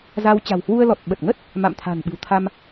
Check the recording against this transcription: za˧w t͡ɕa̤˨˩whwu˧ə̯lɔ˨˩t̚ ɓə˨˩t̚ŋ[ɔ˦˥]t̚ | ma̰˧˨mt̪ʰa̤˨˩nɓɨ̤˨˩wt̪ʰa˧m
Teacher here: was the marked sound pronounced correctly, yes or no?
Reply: no